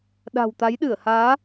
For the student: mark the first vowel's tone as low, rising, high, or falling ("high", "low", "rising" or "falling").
low